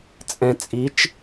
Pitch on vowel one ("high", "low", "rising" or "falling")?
low